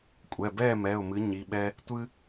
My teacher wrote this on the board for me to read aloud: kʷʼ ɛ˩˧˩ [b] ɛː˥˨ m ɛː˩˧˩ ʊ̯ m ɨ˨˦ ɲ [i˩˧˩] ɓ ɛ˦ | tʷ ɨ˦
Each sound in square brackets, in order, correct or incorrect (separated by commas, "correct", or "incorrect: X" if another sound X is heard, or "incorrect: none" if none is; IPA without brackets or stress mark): correct, correct